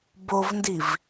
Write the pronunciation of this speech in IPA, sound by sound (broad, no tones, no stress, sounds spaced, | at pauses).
b o v n d i v